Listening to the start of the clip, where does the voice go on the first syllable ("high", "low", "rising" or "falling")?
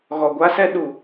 low